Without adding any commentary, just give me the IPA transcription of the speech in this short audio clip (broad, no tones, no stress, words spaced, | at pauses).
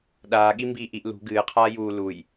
ɗaːɠi mbiːʔiʔ lṳ ɡɨːqʰaː juː luj